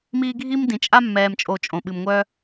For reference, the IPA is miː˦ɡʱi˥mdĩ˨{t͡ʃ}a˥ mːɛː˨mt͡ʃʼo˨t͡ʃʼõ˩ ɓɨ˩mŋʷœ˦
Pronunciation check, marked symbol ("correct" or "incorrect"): incorrect